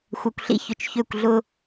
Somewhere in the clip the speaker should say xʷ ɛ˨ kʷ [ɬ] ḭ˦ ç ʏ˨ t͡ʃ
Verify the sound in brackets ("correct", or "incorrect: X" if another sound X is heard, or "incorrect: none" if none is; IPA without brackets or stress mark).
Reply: correct